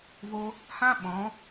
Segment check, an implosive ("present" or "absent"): present